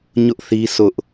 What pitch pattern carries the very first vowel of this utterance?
high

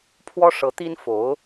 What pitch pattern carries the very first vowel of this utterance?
high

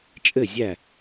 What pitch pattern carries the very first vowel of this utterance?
falling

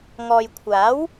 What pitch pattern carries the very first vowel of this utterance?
low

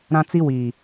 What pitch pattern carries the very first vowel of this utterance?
high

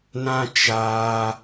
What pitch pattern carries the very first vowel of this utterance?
high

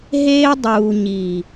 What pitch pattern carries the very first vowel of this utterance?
high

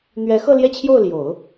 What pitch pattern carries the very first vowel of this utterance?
rising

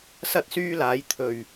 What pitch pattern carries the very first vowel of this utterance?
high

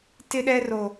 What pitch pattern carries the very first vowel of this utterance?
high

